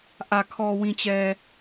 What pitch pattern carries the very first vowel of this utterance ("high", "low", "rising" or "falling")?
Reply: low